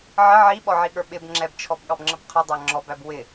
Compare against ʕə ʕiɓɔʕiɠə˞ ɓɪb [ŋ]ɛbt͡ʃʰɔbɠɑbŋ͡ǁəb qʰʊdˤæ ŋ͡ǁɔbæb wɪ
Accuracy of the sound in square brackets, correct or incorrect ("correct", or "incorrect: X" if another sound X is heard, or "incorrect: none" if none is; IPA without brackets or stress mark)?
incorrect: ŋ͡ǁ